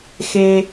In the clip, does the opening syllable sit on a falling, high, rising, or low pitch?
high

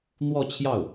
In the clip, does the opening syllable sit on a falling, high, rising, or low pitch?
falling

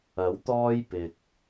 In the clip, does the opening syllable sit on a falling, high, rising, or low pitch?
rising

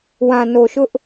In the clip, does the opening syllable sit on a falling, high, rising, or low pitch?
low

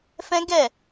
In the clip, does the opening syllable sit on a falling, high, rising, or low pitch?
high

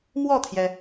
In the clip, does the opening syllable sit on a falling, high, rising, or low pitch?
falling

